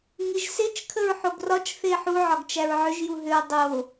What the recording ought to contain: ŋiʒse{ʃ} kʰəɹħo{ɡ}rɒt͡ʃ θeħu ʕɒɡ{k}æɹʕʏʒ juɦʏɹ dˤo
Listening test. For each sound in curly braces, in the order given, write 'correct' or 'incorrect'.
incorrect: t͡ʃ, correct, incorrect: t͡ʃ

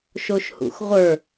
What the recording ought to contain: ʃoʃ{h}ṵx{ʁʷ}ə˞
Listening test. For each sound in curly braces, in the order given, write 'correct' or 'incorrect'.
correct, correct

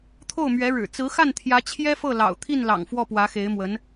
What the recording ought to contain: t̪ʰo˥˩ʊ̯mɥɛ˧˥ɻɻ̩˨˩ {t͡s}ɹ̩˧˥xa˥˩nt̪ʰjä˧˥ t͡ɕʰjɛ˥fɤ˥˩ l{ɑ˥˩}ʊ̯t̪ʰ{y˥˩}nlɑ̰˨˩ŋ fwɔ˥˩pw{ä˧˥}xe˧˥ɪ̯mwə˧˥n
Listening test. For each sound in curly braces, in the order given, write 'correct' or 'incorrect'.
correct, incorrect: ɑ̰˨˩, incorrect: i˥˩, correct

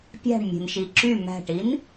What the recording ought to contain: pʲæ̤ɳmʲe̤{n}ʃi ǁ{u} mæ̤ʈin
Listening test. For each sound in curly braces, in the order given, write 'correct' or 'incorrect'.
correct, incorrect: y

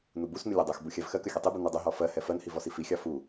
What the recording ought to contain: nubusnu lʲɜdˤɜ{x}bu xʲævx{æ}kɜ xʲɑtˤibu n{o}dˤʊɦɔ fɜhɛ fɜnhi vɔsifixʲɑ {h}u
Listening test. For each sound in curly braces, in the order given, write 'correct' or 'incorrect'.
correct, incorrect: ɜ, incorrect: u, incorrect: f

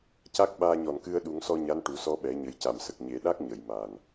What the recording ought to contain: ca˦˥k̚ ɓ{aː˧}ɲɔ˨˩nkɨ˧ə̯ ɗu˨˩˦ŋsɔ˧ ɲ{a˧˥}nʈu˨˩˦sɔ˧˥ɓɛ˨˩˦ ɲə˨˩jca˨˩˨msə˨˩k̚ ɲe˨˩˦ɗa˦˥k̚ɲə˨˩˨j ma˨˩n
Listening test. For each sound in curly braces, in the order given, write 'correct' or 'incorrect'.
correct, correct

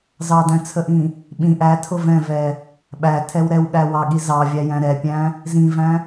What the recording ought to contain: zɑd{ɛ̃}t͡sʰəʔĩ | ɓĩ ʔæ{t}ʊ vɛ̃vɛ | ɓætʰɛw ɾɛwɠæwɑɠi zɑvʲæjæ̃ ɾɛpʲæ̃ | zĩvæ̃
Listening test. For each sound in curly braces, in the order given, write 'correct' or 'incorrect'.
incorrect: æ̃, incorrect: tʰ

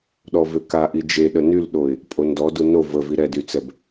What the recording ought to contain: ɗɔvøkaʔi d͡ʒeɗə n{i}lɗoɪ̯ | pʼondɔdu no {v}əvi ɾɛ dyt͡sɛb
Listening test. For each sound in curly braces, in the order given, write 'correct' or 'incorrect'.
incorrect: y, correct

